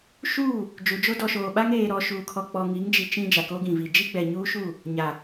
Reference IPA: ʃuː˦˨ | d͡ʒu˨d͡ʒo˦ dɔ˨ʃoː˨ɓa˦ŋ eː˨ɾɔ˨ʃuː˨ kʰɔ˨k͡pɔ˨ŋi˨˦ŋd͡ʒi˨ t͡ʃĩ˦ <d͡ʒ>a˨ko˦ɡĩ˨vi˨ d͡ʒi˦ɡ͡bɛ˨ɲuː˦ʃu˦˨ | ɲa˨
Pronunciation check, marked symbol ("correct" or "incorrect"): correct